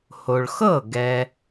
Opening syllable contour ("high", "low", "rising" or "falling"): low